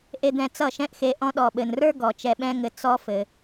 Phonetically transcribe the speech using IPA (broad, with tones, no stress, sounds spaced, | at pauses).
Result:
ʔ e˧ d̪ ɛ̃˧ t͡s ʌ˦˨ ʃ ɛ̃˦ ʔ x e˧ ʔ ɔ̃˧ ɗ ɔ˨ ɓ ɘ˨ n r ə˞˦ ɡ ɔ˨ t͡ʃ ɛ˧ ɓ ɛ̃˦ ŋ ɘ˧ t͡s ɔ˦ f ɘ˧